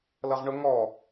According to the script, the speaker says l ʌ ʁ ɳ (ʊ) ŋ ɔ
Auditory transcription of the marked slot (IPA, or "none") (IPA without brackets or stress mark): ʊ